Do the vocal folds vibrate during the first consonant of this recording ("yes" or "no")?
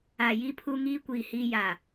yes